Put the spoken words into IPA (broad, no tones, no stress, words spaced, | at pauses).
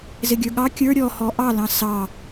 zɪɡʲə˞ɠɑ kʲə˞ ɾʲɔhɔ ʔɑlɑ̃ sɑ